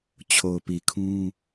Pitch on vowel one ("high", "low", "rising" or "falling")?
low